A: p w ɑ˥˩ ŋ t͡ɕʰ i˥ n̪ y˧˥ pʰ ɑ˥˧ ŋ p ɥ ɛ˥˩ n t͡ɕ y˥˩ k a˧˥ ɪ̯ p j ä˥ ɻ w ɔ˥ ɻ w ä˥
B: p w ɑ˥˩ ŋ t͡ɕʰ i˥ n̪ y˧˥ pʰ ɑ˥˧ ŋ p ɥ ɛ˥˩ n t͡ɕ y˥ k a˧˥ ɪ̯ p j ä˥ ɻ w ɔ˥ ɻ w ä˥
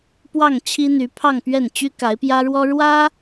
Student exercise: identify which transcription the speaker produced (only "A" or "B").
B